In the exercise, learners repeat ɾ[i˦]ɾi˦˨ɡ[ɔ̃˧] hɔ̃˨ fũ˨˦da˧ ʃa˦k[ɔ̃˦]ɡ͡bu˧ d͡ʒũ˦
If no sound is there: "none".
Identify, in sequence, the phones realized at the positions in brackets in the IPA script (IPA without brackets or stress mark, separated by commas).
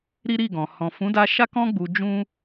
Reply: i˦, ɔ̃˨, ɔ̃˦